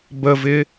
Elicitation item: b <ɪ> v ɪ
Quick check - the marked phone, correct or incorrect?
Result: incorrect: ə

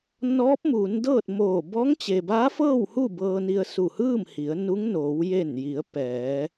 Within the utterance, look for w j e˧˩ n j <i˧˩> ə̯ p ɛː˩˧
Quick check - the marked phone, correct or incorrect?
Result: incorrect: i˩˧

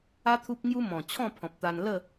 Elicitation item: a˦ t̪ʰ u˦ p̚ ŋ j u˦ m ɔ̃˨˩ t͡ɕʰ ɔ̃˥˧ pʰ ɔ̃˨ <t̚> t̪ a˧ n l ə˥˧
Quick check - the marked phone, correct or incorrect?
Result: incorrect: p̚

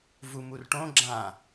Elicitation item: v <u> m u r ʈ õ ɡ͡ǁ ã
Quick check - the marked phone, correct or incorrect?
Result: correct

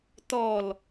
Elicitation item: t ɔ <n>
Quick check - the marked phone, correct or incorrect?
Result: incorrect: l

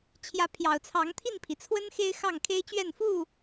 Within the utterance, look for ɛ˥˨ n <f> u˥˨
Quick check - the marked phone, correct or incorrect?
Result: correct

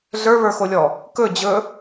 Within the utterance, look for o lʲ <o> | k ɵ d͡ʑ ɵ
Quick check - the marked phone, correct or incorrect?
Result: incorrect: ɔ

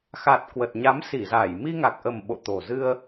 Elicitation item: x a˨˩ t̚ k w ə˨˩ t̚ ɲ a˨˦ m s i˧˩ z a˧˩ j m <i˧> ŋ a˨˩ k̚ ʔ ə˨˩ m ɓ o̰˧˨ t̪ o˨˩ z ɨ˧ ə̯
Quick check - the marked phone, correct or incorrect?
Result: correct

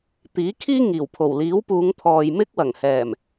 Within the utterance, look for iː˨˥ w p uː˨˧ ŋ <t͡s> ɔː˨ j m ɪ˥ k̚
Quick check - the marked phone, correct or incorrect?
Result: incorrect: t̪ʰ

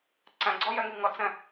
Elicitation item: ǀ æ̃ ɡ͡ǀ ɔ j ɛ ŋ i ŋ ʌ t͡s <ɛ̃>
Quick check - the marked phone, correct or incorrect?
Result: correct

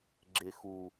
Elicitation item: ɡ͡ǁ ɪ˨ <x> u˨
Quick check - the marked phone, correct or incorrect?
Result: correct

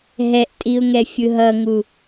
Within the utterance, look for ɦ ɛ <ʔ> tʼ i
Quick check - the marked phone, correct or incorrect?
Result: correct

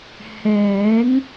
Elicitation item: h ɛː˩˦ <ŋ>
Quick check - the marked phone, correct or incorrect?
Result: correct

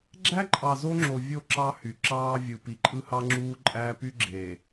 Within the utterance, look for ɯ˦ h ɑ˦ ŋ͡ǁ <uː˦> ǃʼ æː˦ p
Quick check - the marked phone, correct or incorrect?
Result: correct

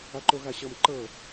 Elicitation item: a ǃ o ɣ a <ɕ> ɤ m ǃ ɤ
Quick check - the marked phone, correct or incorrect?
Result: correct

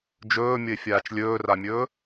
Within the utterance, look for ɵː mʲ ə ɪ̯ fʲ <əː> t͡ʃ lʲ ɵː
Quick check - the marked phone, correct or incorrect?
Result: incorrect: aː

